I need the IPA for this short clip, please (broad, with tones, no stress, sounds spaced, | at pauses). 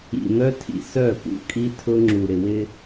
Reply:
ḭ˨ n̪ œ˦ tʰ ḭ˨ s œ˦˨ p ṵ˦ kʼ i˦ tʰ ʊ˦ ŋ͡ǁ u˨ ɾ ɪ˨ w ɪ˦